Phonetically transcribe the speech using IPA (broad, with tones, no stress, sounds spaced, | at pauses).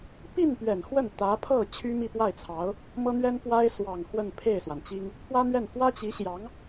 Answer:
p i˥˩ n p ɥ ɛ˨˩ n x w ə˥˩ n t̪ ä˧˥ pʰ ɤ˥˩ t͡ɕʰ y˥ m i˥˧ p w a˥˩ ɪ̯ t͡sʰ ɑ˧˥ ʊ̯ | m ɤ˥ n̪ ɥ ɛ˥ n p w a˥ ɪ̯ s w ɑ˥˧ ŋ x w ə˥˧ n pʰ e˥˩ ɪ̯ s w a˩ n t͡ɕ i˥ ŋ | p w ä˥ n̪ ɥ ɛ˥˩ n f w ä˥ t͡ɕ i˧˥ ɕ j ɑ˧˥ ŋ